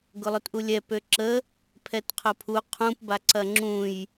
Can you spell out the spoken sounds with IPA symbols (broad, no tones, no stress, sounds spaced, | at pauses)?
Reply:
ɡ ʊ lˠ ʊ t ʔ u lʲ ɛ p ø ǁ ə | pʰ ɛ t qʰ ʊ pʰ u qʰ ũ p b a ǀ ɐ ŋ͡ǁ ũ j